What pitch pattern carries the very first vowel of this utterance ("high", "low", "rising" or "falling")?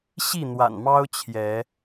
falling